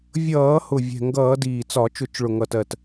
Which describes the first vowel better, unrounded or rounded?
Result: unrounded